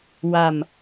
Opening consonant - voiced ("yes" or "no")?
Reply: yes